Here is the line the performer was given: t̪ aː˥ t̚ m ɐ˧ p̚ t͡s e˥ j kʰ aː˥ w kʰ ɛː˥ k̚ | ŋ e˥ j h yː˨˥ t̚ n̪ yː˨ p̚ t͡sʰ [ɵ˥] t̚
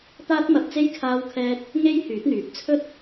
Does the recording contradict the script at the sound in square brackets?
no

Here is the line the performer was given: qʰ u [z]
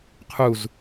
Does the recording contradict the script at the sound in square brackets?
no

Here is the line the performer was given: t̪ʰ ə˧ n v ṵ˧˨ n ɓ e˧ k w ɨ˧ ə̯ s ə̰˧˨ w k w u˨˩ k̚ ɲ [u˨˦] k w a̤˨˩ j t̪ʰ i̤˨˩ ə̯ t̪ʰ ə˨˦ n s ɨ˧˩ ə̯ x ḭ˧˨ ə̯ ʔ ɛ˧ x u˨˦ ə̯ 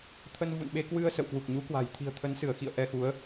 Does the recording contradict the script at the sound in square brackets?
no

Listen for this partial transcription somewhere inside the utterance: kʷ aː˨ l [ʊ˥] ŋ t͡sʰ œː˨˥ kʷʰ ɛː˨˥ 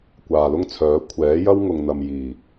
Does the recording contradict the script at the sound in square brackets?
no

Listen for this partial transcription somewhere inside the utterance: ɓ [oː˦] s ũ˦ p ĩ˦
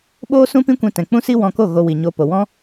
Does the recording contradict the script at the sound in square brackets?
no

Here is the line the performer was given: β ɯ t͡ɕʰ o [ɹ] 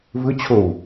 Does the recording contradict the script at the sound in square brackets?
yes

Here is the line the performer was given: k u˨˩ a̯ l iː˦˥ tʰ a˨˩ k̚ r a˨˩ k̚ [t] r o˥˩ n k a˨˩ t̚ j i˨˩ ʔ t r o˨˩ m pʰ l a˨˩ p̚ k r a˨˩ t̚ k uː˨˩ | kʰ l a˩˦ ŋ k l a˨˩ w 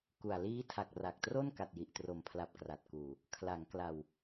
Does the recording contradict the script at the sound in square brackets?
no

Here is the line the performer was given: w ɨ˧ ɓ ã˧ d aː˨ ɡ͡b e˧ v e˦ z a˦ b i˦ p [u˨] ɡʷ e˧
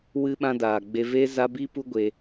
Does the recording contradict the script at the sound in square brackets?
yes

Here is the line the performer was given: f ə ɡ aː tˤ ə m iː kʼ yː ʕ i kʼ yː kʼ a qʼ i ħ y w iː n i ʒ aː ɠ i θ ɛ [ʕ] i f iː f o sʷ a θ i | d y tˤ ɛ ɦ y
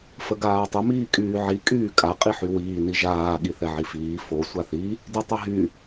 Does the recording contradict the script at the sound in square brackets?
no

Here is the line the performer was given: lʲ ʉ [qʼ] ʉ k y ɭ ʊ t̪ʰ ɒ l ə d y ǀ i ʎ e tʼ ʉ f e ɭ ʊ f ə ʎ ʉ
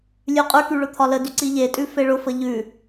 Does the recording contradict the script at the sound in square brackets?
no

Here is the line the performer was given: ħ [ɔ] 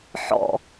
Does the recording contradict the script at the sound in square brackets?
yes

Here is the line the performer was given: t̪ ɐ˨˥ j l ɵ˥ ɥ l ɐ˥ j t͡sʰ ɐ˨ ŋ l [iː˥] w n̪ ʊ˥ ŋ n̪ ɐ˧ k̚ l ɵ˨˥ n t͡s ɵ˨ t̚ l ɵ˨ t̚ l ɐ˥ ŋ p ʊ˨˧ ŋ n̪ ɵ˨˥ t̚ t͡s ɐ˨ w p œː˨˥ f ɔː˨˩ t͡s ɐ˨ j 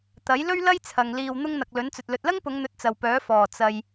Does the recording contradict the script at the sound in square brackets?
yes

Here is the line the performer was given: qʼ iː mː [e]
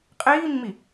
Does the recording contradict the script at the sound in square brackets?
yes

